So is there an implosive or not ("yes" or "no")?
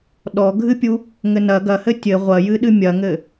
yes